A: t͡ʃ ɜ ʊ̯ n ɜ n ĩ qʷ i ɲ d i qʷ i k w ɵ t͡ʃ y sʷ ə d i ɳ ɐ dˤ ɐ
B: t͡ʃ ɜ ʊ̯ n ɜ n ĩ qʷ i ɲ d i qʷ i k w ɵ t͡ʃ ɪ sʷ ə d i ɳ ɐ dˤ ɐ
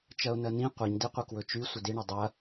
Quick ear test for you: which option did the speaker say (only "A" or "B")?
A